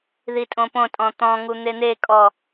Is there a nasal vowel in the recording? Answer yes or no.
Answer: yes